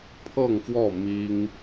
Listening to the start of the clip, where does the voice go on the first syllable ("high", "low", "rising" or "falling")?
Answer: falling